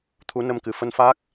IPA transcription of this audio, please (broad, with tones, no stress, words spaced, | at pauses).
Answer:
t̪ʰu˨˦nə˧mkɨ˨˩ fə˧nfaː˦˥k̚